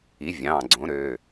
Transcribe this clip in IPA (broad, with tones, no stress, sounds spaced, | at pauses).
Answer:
i˩˥ vʲ ɑ̃ː˩˧˩ ɡ͡ǀ õ˩˥ ɾ ø˩˧˩